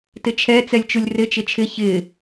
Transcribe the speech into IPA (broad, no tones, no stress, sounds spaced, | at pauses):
t ɪ t͡ʃʰ ɛ t͡s ɛ lʲ t͡ʃ u lʲ r ɪ t͡ʃ ɪ t͡ʃʰ ɪ ç ɪ